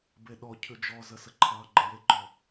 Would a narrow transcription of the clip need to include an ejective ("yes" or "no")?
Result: no